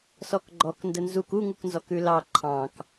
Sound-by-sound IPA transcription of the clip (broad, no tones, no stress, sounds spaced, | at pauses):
s ɔ k ɡ͡ǃ ɔ k n d ə n z u k u ŋ u k n z ɔ k ʉ l ɑ ǃʰ ɑ̃ k